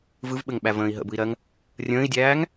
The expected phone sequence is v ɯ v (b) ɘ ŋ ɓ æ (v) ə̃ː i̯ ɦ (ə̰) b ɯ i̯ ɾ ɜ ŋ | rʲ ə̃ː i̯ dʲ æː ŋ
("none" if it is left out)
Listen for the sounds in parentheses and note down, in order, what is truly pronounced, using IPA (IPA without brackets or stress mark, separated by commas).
ɓ, v, ə̰